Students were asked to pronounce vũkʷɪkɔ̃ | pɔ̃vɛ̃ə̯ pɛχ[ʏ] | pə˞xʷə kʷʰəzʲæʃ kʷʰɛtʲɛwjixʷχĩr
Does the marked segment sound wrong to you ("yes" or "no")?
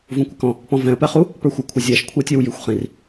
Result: yes